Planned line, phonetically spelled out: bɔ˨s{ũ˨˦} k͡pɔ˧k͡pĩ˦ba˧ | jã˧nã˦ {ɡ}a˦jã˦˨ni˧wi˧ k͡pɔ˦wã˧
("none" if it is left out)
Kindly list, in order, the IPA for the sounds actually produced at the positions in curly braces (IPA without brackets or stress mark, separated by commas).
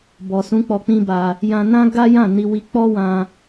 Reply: ũ˨˦, ɡ